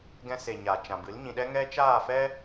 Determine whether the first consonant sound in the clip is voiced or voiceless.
voiced